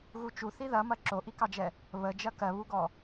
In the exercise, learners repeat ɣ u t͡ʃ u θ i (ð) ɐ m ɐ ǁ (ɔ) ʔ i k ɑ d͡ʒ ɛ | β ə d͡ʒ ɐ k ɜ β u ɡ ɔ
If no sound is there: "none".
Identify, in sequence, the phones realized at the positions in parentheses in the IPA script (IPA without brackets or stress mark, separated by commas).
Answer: ð, o